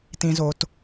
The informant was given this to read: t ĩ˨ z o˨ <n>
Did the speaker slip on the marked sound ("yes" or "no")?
yes